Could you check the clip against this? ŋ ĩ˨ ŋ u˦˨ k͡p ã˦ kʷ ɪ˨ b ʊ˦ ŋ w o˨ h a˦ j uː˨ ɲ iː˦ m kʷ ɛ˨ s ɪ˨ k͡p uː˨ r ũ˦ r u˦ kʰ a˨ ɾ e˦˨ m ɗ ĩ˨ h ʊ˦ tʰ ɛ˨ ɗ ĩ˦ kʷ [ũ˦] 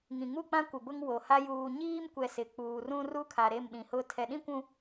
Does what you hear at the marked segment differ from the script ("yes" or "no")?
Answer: yes